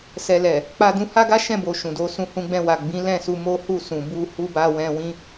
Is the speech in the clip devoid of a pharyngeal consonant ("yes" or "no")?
yes